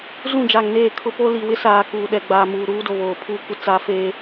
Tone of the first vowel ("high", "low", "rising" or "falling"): falling